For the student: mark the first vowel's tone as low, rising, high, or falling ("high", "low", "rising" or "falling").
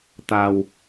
low